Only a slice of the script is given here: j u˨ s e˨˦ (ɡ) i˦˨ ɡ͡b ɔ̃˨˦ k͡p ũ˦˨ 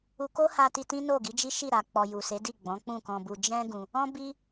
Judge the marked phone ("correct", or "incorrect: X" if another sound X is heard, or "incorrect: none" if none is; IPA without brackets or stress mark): incorrect: d